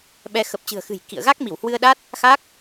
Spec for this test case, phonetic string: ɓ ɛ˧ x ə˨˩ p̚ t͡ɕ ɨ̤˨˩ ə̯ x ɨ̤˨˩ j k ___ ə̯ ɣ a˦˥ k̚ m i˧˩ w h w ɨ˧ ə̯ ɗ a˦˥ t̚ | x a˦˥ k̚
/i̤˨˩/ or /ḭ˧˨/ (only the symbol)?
ḭ˧˨